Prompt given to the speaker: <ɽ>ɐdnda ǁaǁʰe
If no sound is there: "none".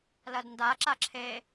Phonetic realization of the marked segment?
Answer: l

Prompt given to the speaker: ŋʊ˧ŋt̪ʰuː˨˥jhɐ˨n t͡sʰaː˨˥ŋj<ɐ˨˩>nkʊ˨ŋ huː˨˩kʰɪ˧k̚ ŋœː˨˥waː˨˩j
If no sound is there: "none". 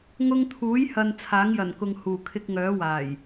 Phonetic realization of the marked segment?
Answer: ɐ˨˩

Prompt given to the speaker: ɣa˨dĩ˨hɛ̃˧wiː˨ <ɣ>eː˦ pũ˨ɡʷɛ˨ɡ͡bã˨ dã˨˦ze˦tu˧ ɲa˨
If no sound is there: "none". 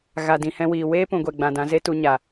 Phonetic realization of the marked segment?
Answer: w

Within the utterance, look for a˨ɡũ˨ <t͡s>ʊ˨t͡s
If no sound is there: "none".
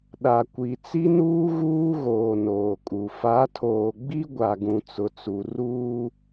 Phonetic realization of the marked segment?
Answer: t͡s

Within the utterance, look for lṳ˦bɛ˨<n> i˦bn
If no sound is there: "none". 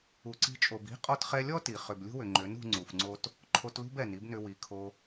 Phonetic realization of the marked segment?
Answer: n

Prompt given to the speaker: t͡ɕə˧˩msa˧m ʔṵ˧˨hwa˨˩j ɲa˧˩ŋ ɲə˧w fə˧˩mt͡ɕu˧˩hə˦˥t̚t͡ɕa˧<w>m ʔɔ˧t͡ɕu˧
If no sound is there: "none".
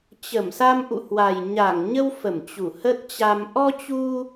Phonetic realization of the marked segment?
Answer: none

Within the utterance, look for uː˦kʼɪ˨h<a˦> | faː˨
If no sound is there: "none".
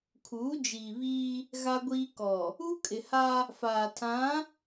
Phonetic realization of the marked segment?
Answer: a˦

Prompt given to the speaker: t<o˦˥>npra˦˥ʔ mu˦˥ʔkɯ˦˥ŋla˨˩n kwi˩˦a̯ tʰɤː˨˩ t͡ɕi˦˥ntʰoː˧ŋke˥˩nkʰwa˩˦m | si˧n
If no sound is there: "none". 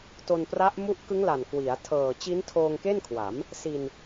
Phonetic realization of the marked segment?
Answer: o˧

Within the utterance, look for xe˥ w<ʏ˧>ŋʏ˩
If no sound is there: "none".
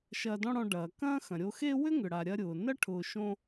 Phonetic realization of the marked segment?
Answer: ʏ˥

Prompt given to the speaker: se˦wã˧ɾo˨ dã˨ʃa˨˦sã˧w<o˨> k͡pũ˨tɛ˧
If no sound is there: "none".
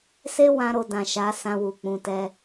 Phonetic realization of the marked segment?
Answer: u˨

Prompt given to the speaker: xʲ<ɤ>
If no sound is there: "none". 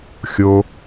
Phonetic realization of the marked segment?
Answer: o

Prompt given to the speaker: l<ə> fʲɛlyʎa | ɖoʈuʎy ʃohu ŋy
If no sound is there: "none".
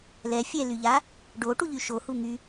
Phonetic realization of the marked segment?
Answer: ɛ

